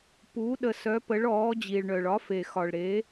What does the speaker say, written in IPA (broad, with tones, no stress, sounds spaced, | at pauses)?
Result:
p u˩˧ ɗ ə˩ s œ˩˧ p ə˩˧ ɭ ɔː˩˧ d͡ʑ i˩ ɭ ɳ œ˩ ɭ ɒ˩˧ f e˩ x ɒ˩ ɭ ɾ e˩˧